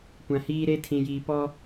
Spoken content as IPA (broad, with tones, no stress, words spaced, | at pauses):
kʷã˨hiː˦ɾe˦tʰĩ˨ jiː˨pɔ˦